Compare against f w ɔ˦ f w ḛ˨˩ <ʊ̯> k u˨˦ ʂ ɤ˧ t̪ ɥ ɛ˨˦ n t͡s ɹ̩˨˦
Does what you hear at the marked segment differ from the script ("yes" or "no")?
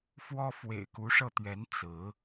yes